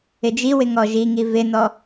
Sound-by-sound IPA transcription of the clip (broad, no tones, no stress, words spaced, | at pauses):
ɪd͡ʒiwɪ ŋɔʒiŋi vɪnɔ